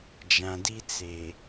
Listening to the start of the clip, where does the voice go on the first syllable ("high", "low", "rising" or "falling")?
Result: low